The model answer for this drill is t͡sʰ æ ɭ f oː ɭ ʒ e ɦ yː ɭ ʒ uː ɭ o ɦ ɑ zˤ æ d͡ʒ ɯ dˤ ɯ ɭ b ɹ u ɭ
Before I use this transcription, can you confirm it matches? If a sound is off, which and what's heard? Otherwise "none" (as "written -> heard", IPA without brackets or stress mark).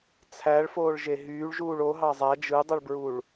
none